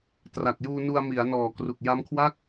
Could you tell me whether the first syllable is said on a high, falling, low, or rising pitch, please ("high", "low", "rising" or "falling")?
low